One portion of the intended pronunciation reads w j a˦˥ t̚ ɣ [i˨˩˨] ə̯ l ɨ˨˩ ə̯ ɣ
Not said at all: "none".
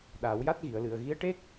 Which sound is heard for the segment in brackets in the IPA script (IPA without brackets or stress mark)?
i˨˩˨